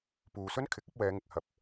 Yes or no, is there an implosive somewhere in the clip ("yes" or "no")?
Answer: no